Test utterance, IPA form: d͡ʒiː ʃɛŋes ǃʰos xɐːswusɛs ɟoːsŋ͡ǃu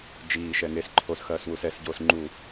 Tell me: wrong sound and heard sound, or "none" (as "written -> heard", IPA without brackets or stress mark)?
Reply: none